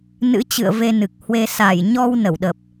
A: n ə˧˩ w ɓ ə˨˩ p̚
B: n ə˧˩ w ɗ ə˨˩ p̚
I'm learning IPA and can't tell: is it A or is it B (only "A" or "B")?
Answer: B